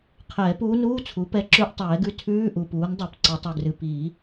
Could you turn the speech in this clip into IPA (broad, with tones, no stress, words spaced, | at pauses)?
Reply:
qʰɛː˨˩˦puː˧˥nuː˧˥˧t͡sʰu˩˥ pɛ˧˥ǁʉ˧˥˧ʔ tˤɛː˨˩˦ɡʉ˧˥ tʰʉː˧˥˧ ʔu˨puː˩˥n dˤɛ˨˩˦pǀɨ˨˩˦tˤʉ˨ɡrɨ˨ piː˨˩˦